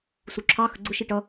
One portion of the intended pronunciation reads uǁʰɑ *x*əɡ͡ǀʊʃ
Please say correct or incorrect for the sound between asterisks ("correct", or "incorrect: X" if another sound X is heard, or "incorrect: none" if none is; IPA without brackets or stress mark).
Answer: correct